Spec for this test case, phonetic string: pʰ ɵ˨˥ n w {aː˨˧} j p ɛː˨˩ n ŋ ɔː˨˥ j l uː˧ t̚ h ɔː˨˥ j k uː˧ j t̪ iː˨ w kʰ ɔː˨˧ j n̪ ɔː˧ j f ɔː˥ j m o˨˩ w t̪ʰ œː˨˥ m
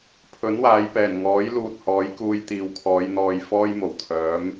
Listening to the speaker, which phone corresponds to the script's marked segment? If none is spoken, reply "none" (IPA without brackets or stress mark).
aː˨˧